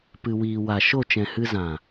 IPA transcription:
p ɨ˨ w iː˨ w a˨ ʃ o˦˨ t͡ʃ ɛ̃˨ h ɨ˧ z ã˨

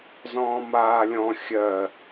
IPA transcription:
z ɔ̃ː m aː lʲ ɔ̃ xʲ ɜ

